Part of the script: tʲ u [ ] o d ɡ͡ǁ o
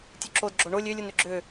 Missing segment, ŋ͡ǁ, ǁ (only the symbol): ǁ